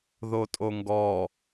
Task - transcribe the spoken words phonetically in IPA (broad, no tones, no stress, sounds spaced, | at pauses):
ð o tʼ o ŋ ɡ ɔ